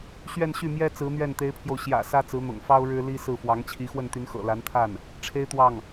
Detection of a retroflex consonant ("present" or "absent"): present